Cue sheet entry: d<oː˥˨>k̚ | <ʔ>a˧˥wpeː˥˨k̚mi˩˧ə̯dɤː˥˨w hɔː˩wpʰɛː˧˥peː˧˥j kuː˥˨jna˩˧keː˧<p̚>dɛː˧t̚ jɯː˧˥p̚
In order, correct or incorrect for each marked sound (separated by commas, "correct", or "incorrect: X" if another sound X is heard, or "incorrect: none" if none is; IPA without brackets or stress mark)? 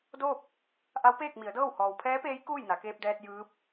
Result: correct, correct, correct